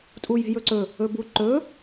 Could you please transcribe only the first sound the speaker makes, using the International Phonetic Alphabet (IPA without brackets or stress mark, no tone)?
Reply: tʼ